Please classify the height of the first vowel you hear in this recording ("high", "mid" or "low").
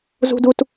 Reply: high